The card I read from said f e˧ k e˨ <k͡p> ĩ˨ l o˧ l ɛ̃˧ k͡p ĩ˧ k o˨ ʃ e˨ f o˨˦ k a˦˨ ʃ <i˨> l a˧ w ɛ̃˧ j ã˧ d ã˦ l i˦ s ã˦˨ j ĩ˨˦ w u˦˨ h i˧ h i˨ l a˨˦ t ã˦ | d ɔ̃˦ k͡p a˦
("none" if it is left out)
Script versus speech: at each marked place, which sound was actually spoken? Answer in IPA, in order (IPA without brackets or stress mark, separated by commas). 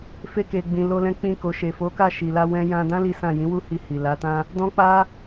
ɡ͡b, i˨